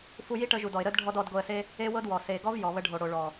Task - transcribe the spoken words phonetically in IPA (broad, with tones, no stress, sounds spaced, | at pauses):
f u˧ j i˦ ʈ əː˧ ʒ u˨ d ɔ˨ ɪ̯ ɾ əː˦ d ɖʱ ɔ˦ d ɔː˧ d ɡ o˧ ə̯ s e˦ | e˦ w ɤ˦ d w ɔ˨ s eː˨ ɡ ɔ˦ v j ɔ˨ β ə˧ ɖʱ o˨ ɽ o˨ ɭ ɔ˨